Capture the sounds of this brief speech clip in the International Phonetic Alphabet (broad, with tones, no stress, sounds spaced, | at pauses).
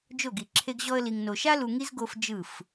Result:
d͡ʒ o˦˨ ɡ i˨ ǁʰ e˧ ɡ ʑ ɔ˧ ə̯ l i˨ ŋ n o˨ ʃ a˦ l u˧ ŋ i˦ z ɡ o˧ f d͡ʒ ɯ˦˨ f